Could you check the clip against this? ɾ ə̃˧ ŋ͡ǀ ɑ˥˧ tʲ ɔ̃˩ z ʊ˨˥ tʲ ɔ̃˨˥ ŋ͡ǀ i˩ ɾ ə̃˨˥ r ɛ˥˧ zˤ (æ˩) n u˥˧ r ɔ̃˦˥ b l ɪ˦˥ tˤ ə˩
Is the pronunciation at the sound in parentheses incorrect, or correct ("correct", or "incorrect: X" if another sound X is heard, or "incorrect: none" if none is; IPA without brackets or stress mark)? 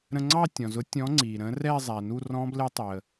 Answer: correct